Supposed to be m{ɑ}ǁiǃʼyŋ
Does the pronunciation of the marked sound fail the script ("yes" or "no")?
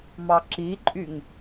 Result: no